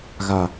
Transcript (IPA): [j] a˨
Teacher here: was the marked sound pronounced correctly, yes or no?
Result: no